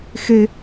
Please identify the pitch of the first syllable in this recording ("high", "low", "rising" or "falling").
high